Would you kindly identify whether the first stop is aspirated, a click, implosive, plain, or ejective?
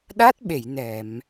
implosive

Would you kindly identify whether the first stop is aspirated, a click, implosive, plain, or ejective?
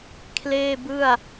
aspirated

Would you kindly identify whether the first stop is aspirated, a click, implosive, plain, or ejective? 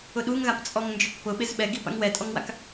implosive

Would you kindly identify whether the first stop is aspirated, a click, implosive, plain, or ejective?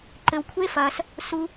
click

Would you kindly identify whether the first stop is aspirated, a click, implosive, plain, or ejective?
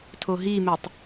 aspirated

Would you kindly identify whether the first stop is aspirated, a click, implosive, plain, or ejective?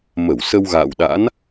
implosive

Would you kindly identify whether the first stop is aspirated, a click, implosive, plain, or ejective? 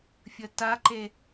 plain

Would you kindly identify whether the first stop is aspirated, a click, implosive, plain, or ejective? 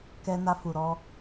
plain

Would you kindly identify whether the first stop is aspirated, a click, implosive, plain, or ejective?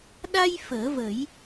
implosive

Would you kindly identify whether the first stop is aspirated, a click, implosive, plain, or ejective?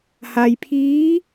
aspirated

